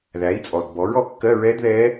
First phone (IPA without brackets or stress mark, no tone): ð